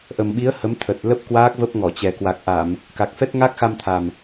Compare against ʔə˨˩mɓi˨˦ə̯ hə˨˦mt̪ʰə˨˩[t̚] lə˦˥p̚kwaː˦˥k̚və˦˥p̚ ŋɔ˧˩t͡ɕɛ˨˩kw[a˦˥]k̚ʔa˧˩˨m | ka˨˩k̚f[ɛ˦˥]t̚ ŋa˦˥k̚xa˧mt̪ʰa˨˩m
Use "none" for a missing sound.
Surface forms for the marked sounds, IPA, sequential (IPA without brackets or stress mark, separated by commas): t̚, a˨˩, ɛ˦˥